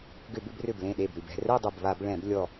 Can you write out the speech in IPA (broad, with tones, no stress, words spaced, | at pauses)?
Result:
ɡʏ˧˩˧bʏ˥˧brʏ˧˩blẽ˧˩ ɗe˧˩bɾʉ˧˩bɛ̤˥˧ rɛ˥˧dˤʊ˧˩bβa˧˩˧b ɭɛ̃˧˩˧blʲɔ˧˩